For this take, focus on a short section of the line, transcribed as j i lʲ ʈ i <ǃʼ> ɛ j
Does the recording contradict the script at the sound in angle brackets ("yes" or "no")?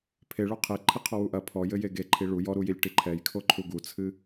yes